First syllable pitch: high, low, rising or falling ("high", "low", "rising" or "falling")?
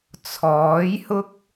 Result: rising